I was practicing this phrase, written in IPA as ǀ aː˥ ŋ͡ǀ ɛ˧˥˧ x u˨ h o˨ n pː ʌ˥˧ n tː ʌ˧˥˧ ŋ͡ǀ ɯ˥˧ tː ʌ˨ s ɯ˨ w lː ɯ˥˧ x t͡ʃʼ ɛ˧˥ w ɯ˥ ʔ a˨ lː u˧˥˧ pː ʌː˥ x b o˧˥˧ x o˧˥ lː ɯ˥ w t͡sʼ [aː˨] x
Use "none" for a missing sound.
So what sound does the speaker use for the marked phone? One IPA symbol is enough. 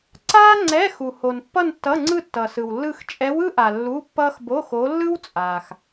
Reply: aː˨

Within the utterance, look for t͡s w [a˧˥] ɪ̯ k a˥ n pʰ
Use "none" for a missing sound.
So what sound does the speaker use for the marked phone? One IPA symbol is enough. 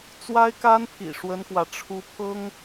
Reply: a˥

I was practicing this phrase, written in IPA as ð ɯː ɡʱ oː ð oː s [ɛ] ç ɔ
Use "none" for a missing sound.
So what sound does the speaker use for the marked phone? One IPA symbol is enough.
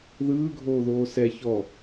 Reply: ɛ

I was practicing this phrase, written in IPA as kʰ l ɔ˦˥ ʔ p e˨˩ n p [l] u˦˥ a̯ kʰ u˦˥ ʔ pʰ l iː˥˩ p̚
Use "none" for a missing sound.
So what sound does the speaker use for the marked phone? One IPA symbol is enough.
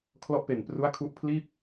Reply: r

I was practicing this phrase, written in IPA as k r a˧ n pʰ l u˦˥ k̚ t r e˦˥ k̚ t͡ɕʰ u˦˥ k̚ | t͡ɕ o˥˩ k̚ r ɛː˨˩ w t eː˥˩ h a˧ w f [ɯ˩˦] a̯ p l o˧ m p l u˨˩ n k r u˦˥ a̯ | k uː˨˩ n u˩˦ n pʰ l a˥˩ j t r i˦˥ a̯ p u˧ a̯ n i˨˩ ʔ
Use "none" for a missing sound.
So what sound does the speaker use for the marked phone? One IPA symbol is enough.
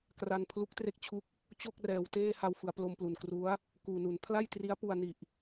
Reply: ɯ˩˦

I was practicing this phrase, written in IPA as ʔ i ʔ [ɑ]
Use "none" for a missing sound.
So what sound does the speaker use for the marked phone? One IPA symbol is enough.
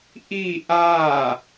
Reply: a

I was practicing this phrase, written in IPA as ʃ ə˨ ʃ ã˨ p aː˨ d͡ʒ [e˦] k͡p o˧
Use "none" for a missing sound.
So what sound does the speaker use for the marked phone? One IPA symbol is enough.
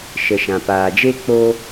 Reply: e˦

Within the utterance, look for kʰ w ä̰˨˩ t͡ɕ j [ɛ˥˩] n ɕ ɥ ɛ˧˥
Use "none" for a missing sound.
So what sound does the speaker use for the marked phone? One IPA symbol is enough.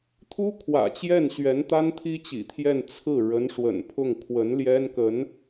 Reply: ɛ˥˩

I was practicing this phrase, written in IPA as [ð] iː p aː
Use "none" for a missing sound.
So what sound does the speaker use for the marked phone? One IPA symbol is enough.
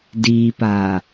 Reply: d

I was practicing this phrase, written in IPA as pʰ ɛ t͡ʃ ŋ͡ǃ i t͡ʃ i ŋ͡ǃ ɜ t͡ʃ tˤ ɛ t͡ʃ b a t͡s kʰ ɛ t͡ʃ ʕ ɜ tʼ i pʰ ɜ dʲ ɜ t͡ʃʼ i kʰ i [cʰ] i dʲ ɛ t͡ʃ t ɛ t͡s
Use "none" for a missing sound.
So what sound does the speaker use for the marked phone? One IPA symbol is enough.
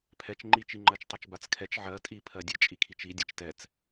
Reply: t͡ʃ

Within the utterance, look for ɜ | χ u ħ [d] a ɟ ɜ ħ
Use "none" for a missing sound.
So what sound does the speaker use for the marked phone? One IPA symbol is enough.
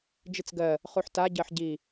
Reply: t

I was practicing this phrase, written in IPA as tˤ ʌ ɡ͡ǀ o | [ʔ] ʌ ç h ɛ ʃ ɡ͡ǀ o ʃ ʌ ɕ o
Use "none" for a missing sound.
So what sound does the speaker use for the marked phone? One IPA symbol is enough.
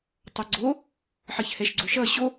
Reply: ħ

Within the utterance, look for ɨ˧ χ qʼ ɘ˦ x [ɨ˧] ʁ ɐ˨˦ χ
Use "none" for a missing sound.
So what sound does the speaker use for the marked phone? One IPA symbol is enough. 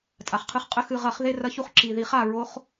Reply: ɨ˧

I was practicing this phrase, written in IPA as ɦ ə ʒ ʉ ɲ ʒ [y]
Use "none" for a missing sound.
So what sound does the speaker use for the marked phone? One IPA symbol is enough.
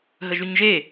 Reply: e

